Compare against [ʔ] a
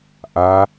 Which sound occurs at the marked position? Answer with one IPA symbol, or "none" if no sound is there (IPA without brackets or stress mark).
ʔ